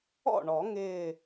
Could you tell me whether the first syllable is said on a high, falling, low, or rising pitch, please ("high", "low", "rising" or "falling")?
falling